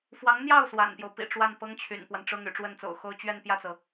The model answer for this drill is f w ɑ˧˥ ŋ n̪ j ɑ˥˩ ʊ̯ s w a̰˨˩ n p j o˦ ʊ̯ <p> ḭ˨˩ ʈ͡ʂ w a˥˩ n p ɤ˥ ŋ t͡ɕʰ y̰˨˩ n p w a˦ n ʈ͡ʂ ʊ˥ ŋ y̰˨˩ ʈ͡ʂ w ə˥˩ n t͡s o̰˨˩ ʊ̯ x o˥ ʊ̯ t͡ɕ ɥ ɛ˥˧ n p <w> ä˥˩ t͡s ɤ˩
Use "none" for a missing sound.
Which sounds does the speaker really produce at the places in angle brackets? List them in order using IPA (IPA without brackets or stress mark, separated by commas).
p, j